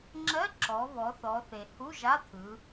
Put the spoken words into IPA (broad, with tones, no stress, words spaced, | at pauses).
ŋ͡ǁɜ˧˥˧ǁɔ˩˧βɔ˩˧ θɔ˩˧θe˩ hu˧˥˧ʒa˧˥˧t̪ʰɯ˩˧